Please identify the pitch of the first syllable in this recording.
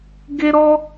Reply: high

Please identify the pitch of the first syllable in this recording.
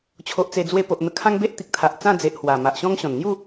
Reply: low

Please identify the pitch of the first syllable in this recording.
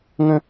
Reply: high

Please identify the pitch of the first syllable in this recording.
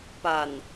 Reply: low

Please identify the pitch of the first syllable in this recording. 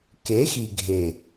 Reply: rising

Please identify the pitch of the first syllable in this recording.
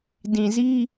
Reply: low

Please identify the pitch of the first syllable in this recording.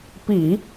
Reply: low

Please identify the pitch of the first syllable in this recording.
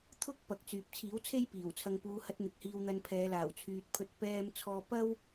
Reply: high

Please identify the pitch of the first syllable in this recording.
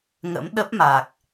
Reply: rising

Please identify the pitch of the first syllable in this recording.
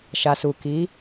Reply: low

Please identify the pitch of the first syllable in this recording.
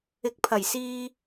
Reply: low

